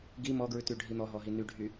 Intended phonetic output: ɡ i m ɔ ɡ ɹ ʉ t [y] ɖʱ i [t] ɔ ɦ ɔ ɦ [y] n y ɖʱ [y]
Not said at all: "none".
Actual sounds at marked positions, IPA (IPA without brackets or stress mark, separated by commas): y, n̪, i, y